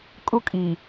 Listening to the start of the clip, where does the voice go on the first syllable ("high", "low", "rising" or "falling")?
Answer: high